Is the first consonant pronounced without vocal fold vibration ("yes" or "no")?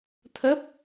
yes